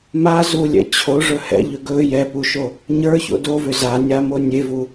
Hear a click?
no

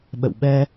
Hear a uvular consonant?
no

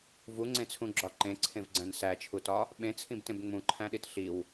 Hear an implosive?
yes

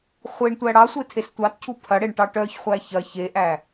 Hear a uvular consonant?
yes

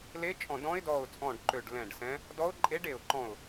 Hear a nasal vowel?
yes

